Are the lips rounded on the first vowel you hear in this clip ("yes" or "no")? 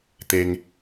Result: no